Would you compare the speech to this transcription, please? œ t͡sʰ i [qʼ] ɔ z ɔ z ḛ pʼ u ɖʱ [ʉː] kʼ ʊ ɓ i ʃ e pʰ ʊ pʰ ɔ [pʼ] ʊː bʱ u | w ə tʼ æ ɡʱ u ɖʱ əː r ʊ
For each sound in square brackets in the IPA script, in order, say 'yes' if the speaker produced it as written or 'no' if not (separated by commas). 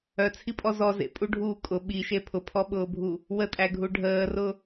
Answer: no, no, no